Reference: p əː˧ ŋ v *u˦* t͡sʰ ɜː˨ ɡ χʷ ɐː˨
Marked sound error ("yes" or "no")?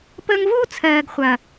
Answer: yes